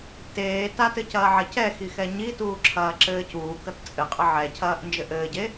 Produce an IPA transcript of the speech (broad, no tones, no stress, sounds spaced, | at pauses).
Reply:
t eː t a t ɘ c ɐː ʕ ɐ c ɛ x i x ɛ ɲ i t uː ǁʰ ɐː ǁ ɘː c uː k ɐ t t͡sʼ ɘ qʼ ɘ ʕ ɛ cʰ ɐː ʔ n d͡ʒ ɘ ʔ ɘː ɟ e